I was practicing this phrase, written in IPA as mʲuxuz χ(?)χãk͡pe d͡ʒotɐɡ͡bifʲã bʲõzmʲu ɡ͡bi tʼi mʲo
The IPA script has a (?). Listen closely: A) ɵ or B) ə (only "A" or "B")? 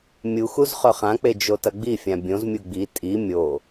A